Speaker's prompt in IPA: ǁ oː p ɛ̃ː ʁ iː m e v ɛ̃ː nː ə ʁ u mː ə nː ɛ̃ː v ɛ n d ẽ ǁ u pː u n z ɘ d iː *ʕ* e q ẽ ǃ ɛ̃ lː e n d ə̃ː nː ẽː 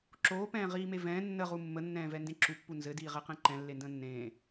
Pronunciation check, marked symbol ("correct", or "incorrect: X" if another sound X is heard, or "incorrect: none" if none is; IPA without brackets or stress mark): incorrect: ʁ